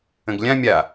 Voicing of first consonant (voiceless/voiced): voiced